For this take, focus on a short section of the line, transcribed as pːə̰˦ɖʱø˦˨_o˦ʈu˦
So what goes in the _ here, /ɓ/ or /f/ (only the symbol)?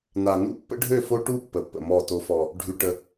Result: f